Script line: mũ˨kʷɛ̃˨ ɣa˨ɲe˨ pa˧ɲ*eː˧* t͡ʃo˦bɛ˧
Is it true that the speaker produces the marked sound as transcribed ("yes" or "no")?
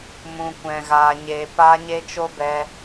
no